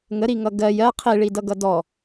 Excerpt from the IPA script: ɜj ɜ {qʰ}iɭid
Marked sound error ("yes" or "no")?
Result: no